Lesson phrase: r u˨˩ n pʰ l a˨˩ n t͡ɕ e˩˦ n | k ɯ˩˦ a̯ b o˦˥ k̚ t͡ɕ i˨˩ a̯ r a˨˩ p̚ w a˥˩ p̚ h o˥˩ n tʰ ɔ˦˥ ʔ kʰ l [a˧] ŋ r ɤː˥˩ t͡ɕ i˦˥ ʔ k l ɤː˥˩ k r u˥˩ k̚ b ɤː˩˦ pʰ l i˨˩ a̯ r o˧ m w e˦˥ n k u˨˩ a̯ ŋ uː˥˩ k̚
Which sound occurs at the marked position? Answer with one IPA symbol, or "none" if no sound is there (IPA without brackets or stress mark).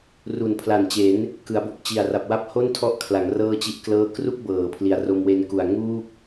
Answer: a˩˦